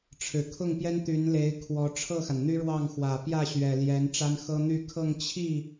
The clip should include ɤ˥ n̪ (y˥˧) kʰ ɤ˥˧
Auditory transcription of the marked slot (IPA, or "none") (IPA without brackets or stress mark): y˥˧